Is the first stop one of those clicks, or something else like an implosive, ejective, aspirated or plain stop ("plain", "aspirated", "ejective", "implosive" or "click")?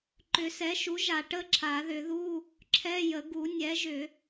click